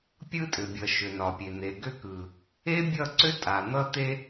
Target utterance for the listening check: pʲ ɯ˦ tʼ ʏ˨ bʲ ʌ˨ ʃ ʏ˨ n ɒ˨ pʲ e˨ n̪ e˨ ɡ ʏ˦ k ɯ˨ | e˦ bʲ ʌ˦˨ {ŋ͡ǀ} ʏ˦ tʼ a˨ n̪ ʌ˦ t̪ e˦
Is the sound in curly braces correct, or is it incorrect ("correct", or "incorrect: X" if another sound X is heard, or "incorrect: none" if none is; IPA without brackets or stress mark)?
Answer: incorrect: ǀ